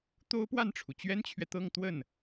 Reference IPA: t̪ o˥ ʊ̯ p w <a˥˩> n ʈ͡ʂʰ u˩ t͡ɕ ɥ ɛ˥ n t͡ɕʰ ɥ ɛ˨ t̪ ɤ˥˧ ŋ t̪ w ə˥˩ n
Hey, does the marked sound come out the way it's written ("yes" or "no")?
yes